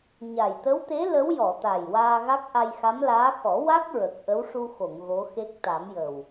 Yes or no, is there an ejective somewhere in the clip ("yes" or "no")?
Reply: no